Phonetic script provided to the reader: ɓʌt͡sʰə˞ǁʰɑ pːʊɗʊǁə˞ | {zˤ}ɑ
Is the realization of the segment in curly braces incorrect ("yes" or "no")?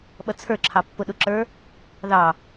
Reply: yes